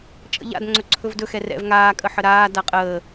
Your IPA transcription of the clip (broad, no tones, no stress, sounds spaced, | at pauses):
t͡ʃʼ ə̰ ʎ a̰ d ŋ͡ǀ ɵ ǀʰ ɵ v d ɵ x ɛ r ɛ̰ v ŋ aː kʼ ə ħ ə ɾ aː d a qʼ əː